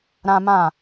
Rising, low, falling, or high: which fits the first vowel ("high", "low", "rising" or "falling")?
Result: high